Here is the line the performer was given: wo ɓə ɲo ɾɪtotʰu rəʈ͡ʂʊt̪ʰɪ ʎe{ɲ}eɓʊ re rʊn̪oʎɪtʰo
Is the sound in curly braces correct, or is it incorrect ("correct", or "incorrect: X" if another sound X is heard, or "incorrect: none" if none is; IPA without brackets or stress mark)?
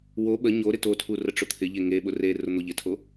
incorrect: ŋ